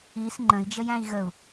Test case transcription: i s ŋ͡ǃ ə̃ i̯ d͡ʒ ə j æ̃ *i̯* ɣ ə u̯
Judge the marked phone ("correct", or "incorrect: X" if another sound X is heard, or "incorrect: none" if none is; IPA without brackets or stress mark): correct